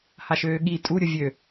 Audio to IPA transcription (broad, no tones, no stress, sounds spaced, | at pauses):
h a ʃ øː ɠ i tʼ u ɾʲ ʊ vʲ ø